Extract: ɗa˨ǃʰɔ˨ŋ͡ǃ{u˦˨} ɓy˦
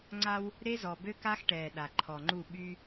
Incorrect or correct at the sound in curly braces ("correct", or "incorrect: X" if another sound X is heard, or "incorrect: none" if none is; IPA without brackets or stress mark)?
correct